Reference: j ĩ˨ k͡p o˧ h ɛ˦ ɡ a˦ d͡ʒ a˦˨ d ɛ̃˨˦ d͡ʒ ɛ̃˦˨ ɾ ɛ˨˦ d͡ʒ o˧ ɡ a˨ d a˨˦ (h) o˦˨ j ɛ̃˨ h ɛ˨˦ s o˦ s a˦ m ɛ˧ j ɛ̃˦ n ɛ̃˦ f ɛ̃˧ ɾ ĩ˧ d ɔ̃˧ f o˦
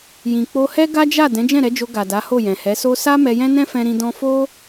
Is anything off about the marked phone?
no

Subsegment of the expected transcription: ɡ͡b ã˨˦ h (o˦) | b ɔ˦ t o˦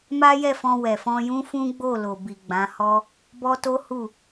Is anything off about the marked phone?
yes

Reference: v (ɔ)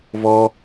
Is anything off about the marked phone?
no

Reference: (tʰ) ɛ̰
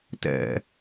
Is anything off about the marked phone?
yes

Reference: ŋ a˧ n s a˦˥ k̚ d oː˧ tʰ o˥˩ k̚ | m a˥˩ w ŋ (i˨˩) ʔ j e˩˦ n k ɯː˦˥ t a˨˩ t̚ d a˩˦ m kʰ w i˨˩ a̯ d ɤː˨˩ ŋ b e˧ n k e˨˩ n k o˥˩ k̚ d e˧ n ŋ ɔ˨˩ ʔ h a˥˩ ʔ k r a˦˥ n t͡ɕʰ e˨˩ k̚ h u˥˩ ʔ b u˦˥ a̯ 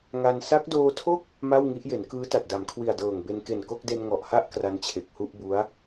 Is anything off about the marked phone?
yes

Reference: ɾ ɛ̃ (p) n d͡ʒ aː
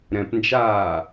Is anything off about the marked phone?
no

